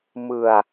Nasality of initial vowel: oral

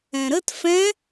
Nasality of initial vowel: nasal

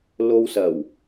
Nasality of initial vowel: oral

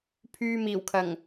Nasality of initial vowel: oral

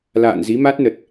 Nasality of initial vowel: oral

